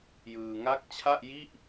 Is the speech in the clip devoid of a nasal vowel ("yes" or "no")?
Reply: yes